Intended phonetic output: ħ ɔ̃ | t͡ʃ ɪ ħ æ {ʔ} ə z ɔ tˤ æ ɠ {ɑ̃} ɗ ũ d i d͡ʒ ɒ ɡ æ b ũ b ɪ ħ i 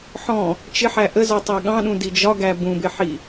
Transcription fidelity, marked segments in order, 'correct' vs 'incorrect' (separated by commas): correct, correct